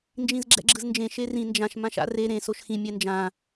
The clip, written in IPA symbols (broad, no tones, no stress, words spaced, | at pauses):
nd͡ʒĩzɡ͡ǁɛ̰ɡ͡ǁɯznd͡ʒẽ ʃerĩ nd͡ʒãʃ mãʃa̰re ɾẽ soʃxĩ mʲɛnd͡ʒã